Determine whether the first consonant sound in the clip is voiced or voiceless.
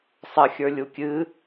voiceless